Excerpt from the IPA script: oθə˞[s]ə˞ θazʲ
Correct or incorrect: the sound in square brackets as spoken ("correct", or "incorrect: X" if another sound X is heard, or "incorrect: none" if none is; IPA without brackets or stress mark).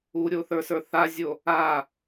correct